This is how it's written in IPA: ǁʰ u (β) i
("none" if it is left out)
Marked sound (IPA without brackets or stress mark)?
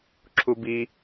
b